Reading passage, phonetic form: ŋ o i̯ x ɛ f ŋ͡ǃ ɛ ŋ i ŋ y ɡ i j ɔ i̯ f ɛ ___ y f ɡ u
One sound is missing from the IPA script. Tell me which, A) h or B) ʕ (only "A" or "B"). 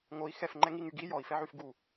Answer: B